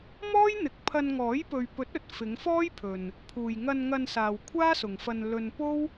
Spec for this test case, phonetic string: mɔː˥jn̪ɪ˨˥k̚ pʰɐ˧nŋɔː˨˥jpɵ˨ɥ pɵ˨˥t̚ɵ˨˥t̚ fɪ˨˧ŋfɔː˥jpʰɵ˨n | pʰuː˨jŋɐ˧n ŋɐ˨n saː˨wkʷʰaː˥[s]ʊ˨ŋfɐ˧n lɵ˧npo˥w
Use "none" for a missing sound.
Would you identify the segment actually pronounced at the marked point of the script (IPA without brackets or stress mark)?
s